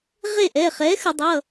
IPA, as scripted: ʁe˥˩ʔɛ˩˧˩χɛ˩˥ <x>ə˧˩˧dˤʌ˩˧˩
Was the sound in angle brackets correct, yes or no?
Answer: yes